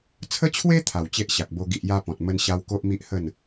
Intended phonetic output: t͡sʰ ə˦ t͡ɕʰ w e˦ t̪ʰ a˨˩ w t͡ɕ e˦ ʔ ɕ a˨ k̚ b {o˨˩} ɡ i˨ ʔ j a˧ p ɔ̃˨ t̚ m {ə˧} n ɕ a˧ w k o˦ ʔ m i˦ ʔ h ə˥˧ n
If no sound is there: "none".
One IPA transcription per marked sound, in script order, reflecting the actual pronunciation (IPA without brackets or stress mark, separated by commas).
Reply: o˧, ə˧